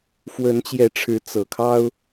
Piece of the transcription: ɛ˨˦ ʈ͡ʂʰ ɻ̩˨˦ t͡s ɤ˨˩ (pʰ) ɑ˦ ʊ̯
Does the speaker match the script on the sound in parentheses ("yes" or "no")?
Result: no